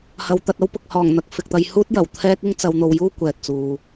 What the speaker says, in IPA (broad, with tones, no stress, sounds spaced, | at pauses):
h ɐ˧ w t̪ ɐ˧ t̚ ɐ˥ w p ʊ˨ k̚ h ɔː˨˩ ŋ n̪ ɐ˨ k̚ f ɪ˨ k̚ t̪ ɐ˨˧ j h uː˥ t̚ j ɐ˨˩ w t̪ʰ ɛː˥ k̚ ɪ˥ ŋ t͡s ɐ˧ w n̪ o˧ w j uː˥ kʷ ɛː˨ t̚ t͡s uː˨